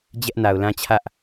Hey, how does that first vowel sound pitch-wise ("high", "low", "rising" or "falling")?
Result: high